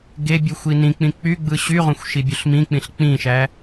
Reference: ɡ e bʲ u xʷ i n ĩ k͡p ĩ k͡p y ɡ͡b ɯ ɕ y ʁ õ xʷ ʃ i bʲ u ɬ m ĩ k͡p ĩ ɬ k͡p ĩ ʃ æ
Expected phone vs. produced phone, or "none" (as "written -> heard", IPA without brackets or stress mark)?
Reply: none